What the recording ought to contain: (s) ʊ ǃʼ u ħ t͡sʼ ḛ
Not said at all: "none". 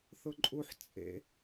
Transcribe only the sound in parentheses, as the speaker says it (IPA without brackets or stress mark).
θ